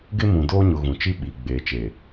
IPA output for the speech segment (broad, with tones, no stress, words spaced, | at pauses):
ɡɪ˦mũ˨doː˦ɲʊ˨ ɣũ˨t͡ʃi˦ ɓi˨ ɡ͡beː˨ t͡ʃeː˨